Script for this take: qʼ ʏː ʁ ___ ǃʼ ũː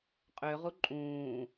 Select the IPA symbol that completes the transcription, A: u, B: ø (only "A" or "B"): A